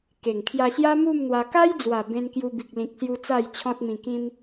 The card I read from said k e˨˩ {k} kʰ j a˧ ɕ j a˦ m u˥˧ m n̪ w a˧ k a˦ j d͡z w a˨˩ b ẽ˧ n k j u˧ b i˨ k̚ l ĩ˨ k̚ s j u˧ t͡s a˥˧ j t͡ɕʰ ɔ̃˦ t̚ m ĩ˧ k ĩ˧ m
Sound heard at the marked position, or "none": ŋ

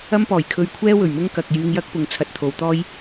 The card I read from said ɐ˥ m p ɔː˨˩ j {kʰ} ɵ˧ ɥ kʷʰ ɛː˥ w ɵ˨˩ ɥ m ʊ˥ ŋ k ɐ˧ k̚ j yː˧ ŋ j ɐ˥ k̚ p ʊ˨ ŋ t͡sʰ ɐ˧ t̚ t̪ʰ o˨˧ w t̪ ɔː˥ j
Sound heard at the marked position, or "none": kʰ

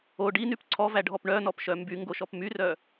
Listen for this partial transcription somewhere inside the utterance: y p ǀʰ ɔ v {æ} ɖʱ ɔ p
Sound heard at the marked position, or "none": æ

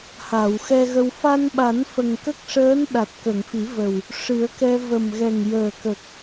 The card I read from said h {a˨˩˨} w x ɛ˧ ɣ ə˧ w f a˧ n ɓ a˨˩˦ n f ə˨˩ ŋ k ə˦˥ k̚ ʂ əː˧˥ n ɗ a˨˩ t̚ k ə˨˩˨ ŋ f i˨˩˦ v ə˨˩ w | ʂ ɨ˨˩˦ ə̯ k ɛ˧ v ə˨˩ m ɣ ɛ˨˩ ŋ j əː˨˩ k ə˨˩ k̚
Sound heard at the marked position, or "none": a˨˩˨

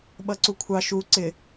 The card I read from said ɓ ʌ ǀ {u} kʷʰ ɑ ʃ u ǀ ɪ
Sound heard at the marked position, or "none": u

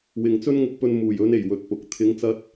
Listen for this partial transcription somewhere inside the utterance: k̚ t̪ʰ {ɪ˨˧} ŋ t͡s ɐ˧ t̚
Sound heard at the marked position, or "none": ɪ˨˧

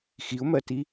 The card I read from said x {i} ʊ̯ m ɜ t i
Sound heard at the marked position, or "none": i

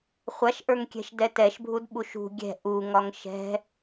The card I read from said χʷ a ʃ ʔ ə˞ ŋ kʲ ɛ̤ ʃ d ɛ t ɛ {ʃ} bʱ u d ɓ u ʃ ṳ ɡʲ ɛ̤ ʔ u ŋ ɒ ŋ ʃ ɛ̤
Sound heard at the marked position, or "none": ʃ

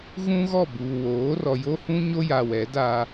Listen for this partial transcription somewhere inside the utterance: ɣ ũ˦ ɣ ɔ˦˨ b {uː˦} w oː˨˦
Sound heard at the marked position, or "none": uː˨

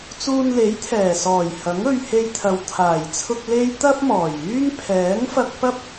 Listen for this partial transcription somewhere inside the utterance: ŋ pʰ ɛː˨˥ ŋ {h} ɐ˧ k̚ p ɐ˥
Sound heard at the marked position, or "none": f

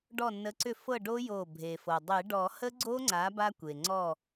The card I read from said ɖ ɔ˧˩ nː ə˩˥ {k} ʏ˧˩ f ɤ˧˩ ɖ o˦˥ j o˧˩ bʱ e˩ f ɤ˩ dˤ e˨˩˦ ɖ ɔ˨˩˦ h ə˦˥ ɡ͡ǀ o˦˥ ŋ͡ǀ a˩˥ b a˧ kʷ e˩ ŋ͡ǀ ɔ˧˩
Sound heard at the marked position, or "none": ǀ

